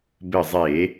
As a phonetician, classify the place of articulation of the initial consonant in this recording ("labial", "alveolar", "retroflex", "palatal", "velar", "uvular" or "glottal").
labial